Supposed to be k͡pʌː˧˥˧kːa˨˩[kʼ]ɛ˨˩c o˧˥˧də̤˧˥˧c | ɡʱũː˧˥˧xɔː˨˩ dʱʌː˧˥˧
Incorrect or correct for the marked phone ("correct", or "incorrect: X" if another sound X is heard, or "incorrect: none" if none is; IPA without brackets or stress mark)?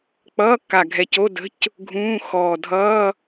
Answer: incorrect: ɡʱ